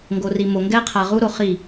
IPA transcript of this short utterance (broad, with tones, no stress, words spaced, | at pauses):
ŋɡo˨ri˨mo˨ ŋɡɛ˦qʰa˨ ʁu˦ɾo˨χi˦˨